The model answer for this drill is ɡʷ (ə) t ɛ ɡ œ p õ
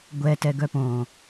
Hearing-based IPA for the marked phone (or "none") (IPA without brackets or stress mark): ɛ